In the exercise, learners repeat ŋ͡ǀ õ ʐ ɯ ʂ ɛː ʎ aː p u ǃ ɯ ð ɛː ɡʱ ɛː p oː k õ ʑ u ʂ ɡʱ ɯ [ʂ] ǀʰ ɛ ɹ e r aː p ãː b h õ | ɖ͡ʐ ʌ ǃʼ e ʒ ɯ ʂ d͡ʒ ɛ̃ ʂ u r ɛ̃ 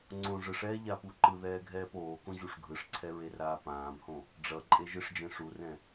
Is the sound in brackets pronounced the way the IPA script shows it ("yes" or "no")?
yes